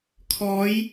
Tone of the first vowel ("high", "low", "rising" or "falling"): rising